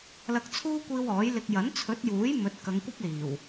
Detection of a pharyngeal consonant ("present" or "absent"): absent